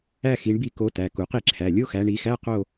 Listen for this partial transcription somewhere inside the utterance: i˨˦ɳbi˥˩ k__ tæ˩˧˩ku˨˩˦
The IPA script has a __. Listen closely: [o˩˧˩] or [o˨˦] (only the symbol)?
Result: o˨˦